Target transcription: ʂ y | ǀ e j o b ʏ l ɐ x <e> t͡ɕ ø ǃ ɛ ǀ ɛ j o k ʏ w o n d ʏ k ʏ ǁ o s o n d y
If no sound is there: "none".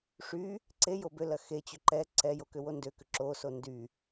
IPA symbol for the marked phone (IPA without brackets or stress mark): e